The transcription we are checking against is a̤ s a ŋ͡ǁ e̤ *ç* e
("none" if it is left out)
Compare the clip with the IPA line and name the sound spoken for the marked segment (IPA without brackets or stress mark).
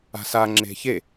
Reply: ç